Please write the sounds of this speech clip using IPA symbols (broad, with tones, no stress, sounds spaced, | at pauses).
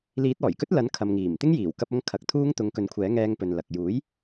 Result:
l iː˨˥ t̚ ɔː˨˩ j k ɵ˥ t̚ l ɐ˨˥ n kʰ ɐ˨ m ŋ iː˨˩ m t̪ ɪ˥ ŋ j iː˨˩ w k ɐ˧ p̚ ɐ˧ ŋ kʰ ɐ˨˥ k̚ t̪ʰ uː˥ ŋ t̪ ʊ˧ ŋ k ɵ˨˥ n kʷʰ ɛː˨˥ ŋ ɛː˧ ŋ p ɵ˨ n l ɐ˨ k̚ j uː˨˥ j